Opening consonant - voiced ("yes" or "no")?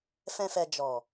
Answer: no